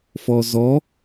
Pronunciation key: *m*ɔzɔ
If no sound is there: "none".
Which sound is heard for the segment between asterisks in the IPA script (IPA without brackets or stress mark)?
f